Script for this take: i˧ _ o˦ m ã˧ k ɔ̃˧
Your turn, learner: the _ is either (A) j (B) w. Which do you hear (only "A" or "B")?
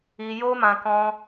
A